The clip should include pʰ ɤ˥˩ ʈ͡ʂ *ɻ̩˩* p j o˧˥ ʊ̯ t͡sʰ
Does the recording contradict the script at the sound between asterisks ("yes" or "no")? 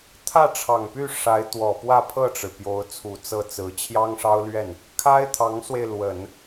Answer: no